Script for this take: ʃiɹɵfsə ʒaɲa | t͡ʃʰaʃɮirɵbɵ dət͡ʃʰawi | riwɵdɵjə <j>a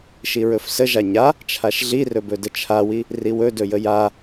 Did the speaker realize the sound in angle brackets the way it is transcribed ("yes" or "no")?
yes